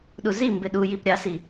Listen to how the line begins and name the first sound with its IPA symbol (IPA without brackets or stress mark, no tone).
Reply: ɗ